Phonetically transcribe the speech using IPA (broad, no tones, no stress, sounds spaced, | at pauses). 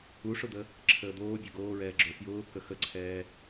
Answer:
u ʂ ʊ d̪ ə | ǁʰ əː d̪ oː bʲ ø ɡ oː ɹ ɛː ɡ͡ǁ ø f j ʊː k ə x ə ǀʰ ɛː